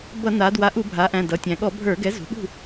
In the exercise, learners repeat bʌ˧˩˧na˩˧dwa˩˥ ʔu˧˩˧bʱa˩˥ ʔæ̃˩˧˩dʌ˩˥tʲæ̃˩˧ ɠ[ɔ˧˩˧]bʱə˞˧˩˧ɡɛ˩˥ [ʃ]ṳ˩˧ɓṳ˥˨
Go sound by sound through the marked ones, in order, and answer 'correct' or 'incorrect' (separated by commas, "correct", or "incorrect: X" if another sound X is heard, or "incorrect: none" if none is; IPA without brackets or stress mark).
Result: correct, incorrect: z